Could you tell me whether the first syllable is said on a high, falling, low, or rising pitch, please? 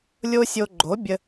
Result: high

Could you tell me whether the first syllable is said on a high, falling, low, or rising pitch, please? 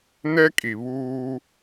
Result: high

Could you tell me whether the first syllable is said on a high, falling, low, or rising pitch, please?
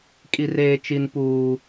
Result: high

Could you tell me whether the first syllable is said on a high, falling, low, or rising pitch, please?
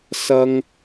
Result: high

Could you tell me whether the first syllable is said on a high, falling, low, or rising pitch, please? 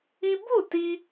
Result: high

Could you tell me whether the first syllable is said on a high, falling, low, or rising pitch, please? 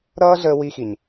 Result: high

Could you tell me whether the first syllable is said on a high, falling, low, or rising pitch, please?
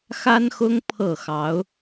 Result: high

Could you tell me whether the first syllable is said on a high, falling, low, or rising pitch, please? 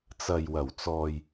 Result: low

